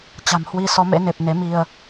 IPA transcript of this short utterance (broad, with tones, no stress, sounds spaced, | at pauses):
t͡ɕ a̤˨˩ m h w i˧ s ɔ˨˦ m ḛ˧˥ n e˨˩ p̚ n e˨˦ m i˧ ə̯